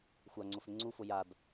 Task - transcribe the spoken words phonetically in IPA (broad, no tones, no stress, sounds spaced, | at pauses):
xʷ a ŋ͡ǀ ʊ f ɾ ɪ ŋ͡ǀ u f ʊ j a d